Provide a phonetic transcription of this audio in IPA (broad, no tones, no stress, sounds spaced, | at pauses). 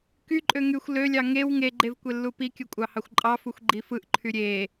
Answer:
k y ǃʼ ø ŋ y xʷ l ø lʲ ɑ ŋ e w ŋ e ɡ͡ǃ e v kʷ e lː u p i kʲ ɯ kʷʼ ɑ h ɑ xʷ ǃʼ ɑ f u xʷ ɡ͡ǃ i f ɯ ʔ ǃʰ y ɾʲ e